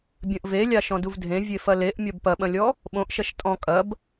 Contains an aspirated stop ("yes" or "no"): no